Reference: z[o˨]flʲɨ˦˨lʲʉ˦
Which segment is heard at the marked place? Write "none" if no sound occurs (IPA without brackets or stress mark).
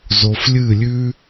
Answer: o˨